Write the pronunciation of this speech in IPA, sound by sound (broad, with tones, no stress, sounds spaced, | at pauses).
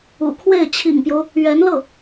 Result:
ṵ˨˩ kʰ w e˥˩ ɪ̯ t͡ɕʰ ḭ˨˩ ŋ p j o˦ ʊ̯ | ɥ ɛ˧˥ n l ɤ˥˩